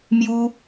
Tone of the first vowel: high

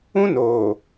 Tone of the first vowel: high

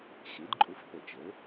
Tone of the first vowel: rising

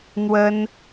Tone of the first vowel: high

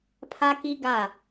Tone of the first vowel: high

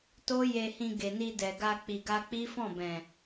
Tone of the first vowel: high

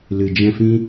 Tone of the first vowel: low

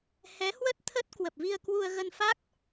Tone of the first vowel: rising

